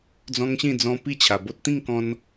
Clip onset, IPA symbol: d͡z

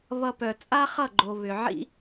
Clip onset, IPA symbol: β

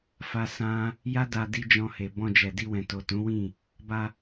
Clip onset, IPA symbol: f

